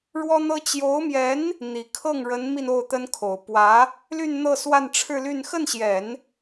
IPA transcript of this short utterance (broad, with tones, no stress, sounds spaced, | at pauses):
ɻ w ɔ˥ n̪ ɤ˥ t͡ɕ j o˧˥ ʊ̯ m j ɛ˧˥ n | n̪ i˨˩ kʰ ɤ˥˩ ŋ ɻ ə˧˥ n m i˧ n o˥˩ ʊ̯ t̪ ə˥ n kʰ o˨˩ ʊ̯ p w ä˧˥ | l y˥˧ n n̪ ɤ˥˧ s w a˥˧ n ʈ͡ʂʰ ɻ̩˥˧ l y˥˧ n x ə˥˩ n ɕ j ɛ˨˩˦ n